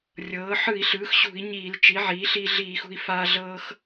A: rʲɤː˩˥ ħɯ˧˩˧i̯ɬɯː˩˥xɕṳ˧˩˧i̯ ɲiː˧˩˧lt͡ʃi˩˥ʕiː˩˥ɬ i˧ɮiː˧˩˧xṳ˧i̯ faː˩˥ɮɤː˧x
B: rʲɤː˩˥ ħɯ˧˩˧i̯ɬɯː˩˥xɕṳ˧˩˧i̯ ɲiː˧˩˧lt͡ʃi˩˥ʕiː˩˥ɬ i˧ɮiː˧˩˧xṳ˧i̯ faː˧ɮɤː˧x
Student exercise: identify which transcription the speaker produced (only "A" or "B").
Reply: B